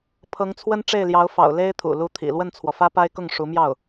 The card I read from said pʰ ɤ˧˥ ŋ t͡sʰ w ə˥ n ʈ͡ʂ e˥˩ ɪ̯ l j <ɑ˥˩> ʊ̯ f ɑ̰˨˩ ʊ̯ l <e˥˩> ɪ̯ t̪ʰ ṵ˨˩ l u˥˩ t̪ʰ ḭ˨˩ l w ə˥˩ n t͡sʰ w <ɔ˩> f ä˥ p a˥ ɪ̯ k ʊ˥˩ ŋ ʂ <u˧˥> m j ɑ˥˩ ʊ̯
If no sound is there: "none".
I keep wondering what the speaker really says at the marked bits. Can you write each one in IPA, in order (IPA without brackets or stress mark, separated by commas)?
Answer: ɑ˧˥, e˥, ɔ˩, u˧˥